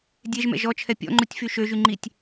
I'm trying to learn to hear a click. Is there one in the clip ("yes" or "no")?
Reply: yes